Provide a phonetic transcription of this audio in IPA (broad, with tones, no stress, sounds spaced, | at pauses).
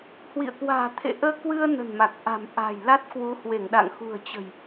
h w ḭ˧˨ ə̯ k w a̤ː˨˩ t̪ʰ ḛ˧˨ ʔ əː˧ k w ɨ˧ ə̯ n ə̤˨˩ n m a˨˩ k̚ ʔ a̤˨˩ m ʔ a̤ː˨˩ j l a˦˥ t̚ k w u˨˦ h w e˧˩ ŋ ɗ a̰˧˨ ŋ x ṳ˨˩ ə̯ t͡ɕ ə̤˨˩ j